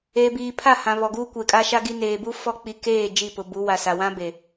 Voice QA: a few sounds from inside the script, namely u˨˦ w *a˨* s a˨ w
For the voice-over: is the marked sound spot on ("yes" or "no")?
yes